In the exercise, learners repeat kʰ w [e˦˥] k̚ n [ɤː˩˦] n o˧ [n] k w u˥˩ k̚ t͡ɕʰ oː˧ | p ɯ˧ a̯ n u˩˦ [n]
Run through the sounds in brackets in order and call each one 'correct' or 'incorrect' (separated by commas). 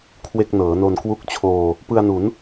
incorrect, correct, correct, correct